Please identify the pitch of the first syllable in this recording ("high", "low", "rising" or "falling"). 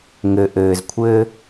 low